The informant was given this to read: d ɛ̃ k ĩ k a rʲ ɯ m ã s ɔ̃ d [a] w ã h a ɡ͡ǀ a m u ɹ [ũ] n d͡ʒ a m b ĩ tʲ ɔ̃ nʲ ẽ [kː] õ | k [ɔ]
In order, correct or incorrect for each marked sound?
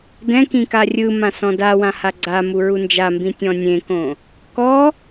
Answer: correct, incorrect, incorrect, correct

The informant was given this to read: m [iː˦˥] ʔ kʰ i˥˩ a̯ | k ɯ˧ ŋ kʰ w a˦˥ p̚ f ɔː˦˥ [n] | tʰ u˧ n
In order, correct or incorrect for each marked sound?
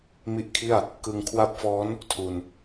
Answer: incorrect, correct

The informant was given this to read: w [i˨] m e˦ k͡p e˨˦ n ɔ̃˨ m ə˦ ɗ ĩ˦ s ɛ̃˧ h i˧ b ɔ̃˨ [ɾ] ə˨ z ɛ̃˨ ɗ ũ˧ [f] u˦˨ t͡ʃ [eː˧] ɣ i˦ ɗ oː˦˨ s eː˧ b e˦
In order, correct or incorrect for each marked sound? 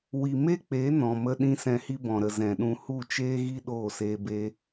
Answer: correct, correct, incorrect, incorrect

